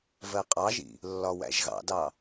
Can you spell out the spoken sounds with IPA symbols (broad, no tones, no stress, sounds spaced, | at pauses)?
v ɜ qʼ ɑ ʒ ḭ | lː ɒ w æ̰ ʒ ɣ ɑ̰ d ɑ